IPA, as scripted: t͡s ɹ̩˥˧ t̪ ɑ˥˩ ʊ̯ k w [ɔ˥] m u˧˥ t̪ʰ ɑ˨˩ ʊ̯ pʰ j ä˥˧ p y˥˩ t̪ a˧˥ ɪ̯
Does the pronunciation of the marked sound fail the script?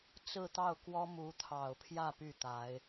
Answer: no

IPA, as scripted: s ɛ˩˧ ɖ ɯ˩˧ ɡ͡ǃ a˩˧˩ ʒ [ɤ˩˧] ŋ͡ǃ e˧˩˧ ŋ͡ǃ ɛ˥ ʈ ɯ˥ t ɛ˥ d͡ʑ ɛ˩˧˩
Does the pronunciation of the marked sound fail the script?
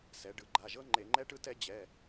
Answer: yes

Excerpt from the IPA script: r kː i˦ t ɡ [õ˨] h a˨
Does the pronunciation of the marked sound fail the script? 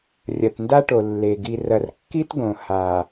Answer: no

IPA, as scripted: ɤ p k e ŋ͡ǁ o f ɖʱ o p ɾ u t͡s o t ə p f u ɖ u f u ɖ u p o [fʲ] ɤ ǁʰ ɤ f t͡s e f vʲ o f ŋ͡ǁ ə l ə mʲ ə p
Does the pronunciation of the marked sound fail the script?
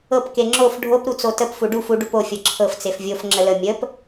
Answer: no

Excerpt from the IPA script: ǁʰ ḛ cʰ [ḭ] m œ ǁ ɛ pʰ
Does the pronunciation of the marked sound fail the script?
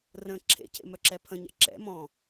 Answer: yes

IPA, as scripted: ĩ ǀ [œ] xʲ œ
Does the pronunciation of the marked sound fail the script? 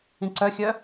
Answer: no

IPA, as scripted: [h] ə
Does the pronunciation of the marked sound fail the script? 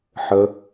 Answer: yes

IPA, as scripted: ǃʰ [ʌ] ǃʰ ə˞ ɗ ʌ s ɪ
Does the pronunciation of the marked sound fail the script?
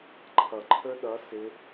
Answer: no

